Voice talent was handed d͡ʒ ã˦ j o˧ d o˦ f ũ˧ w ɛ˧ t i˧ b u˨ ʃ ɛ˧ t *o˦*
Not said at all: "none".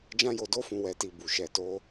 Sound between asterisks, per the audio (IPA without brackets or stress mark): o˦